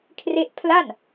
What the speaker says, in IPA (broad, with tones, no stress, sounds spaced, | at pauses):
kʰ r e˥˩ ʔ pʰ l a˥˩ n